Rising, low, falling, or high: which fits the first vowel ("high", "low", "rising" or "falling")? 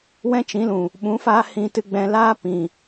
high